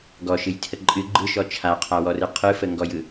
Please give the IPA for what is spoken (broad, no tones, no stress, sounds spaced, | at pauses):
ɡ ɔ ʃ ɨ j tʰ ə ǃʼ ɨ ɡ͡ǃ ɯ ʃ ɔ t͡ʃʰ a qʰ a w ɔ r ɯ qʰ ɯ f ə ŋ ɡ ɔ j ɯ